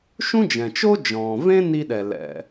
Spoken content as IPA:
ʃ ũ˥ d͡ʒ ɛ̃˩ t͡ʃ o˥ d͡ʒ ɔ̃ː˩ v ẽ˥ n i˧ ɗ ɛ˩ l ɛ̰˩

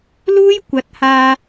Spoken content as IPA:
l uː˥ j kʷ ɐ˨˥ t̚ h aː˧

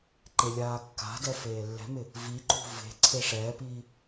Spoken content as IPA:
ǃ e lʲ aː kː a̤ d ɛ f eː lː ɛ̤ m ɪ | v i ǃ ṳ v e̤ ǀʰ e ʂ ɛː p iː

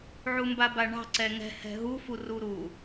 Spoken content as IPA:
ʕ u m b a b a ɳ ɑ̤ ǀ ɛ ŋ ɛ̤ h ɛ̤ ɦ u f u r u ɾ u

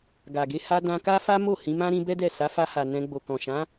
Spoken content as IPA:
ɡ a˨ ɡ e˧ h a˧ d ã˧ k a˦ f a˦ m o˦˨ h ĩ˨˦ m ã˦ ɾ ĩ˧ b ɛ˦ d ɛ˦˨ s a˨˦ f a˧ h a˨ n ɛ̃˧ ɡ͡b o˨ k ɔ̃˨ ʃ ã˨˦

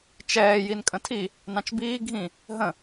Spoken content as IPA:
t͡ʃ ɛː j i n kʼ ə̃ tʰ i | n ɑ̃ t͡ʃ b iː ɡʱ ĩ | ɦ ə̃

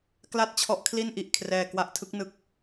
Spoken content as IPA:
k l a˥˩ t̚ t͡ɕʰ ɔ˦˥ ʔ kʰ l i˥˩ n ʔ i˨˩ ʔ kʰ r ɛː˨˩ k w a˦˥ ʔ tʰ ɯ˦˥ k̚ n ɯ˦˥ k̚

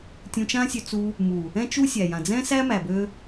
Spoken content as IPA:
tʲ ũ˧ t͡ʃ ã˦ sʲ ø˧ t͡s u˧ | m u˨ | ɛ̃˦ t͡ʃ u˦ sʲ æ˨ j ã˨ d͡z ɛ̃˦ s æ˦ m æ˨ b ø˧

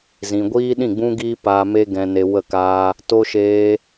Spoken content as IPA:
z ĩ˨ ɡʷ iː˦ ɗ ĩ˦˨ ɡ͡b ũ˦ ɡ iː˦ p aː˧ m e˦ ɡ ɛ̃˧ n e˧ w ə˦˨ k aː˦ | t o˦ ʃ eː˦

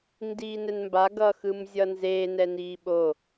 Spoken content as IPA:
n d iː n ɛ n m b a ɡ ʌ x ɯ m zʲ ʌ n z e n ɛ n iː ɓ o

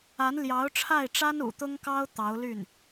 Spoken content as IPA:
a˧˥ n l j ɑ˧˥ ʊ̯ ʈ͡ʂʰ a˥˩ ɪ̯ ʈ͡ʂ a˥ n ṵ˨˩ t̪ ʊ˥ ŋ k ɑ˥ ʊ̯ t̪ ɑ˧˥ ʊ̯ l y˥˩ n

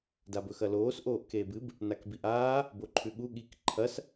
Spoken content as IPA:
d a b ɵ x ɐ l oː s ʔ oː ʔ k eː b ɨ b | n a k b i ʔ aː | b o ǃʰ ʉ ɠ u ɠ i k ǃʰ ɐ s

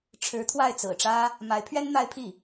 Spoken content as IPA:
ʈ͡ʂʰ ɻ̩˧˥ t̪ʰ w a˥˩ ɪ̯ t͡s ɹ̩˨˩ ʈ͡ʂ ä˥ | m a˧˥ ɪ̯ pʰ ɥ ɛ˥ n n̪ a˥ ɪ̯ pʰ i˥˩

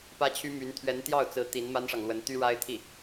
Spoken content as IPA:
p ä˥ t͡ɕʰ y˥ m y˧˥ n t̪ʰ ɥ ɛ˧˥ n t̪ j ɑ˥˩ ʊ̯ t͡s ɹ̩˧˥ t̪ i˧˥ n m a˥ n ʂ ɑ˨ ŋ l w ə˧˥ n t̪ y˥ ɻ a˥ ɪ̯ t̪ʰ i˥˩

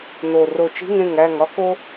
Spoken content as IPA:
n o˨˩ r o˨˩ t͡ʃ i̤˧˥˧ ŋ ẽ˥˩ ŋ æ˥˩ ŋ ɒ˥ k o˥

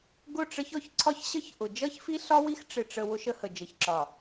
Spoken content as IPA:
ɡ ʊ˦˨ ʈ͡ʂ ə˦ ç ɔ˦ ç ǀʰ ɒ˦ ç ɕ ə˦ ç ʔ ʊ˨ d͡ʒ ʌ˦ ç f i˦ ɬ ɒ˦ w i˦ x ʈ͡ʂ ɪ˨ ʈ͡ʂ ə˨ w ʊ˦ ʃ ə˦ h ə˨ d͡ʒ ə˨ ç ǁ ɒ˨

